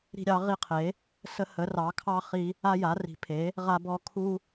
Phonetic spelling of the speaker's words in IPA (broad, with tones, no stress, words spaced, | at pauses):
ɾi̤˦ɾʲɑ˩˥ʁi˦qʰe˩˥ | sə˦ hə˩˥rɑ˩˥kʰɑ˦ χi˦ | a˦ja˩˥ri̤˩˥ pʰe˩˥ | ʁa˦bɔ˦ kʰu˦